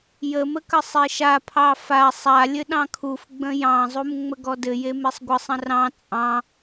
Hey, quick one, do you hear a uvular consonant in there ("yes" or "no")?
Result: no